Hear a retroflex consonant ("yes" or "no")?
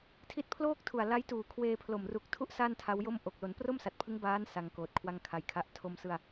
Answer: no